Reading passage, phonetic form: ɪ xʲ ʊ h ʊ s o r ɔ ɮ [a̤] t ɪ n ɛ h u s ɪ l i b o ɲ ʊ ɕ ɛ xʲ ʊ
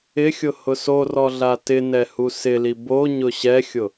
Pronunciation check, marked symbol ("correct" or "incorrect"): incorrect